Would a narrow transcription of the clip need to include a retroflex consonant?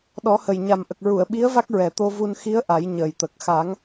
no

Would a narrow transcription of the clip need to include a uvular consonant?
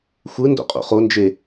yes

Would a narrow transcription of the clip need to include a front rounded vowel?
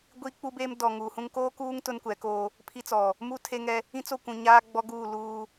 no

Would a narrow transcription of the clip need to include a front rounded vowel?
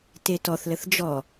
no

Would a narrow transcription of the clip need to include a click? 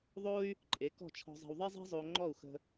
yes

